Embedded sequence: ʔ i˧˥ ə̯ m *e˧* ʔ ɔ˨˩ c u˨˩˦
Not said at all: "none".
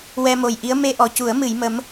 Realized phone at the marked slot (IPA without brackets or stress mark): e˧